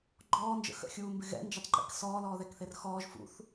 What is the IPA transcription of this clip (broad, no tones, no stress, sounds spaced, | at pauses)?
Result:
ɡ͡ǃ ɔː n d͡ʒ ə̰ x ə̰ xʲ uː m b ɪ ɣ ɛ̰ n d͡ʒ ə tˤ ǃ ḭ k s ɔː l ɔː ð ɛ k θ e r x ɔː ʒ f ṵ θ